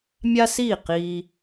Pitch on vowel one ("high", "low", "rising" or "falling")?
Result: high